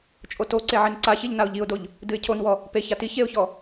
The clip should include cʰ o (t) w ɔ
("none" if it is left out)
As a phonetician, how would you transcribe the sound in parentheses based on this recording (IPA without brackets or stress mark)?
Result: n